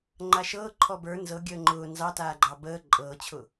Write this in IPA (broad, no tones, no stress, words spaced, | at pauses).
ŋ͡ǃaʃɤː ǃʰɔbə˞ nzɤɡʲəː ŋ͡ǃʊː nzɑtaːɡ͡ǃɑ bəː ǃʼɤːt͡ɕʰʊː